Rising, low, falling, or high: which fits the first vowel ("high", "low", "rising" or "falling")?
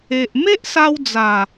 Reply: low